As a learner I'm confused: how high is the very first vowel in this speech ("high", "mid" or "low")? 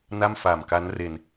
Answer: low